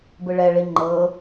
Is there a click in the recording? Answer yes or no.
yes